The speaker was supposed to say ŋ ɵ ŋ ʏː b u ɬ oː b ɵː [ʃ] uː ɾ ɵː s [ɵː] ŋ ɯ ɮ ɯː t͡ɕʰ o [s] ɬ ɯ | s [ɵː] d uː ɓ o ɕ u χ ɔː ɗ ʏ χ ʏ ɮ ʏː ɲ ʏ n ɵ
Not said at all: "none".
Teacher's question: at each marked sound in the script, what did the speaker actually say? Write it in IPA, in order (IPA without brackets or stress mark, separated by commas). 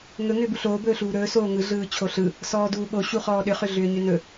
ɬ, oː, none, ɔː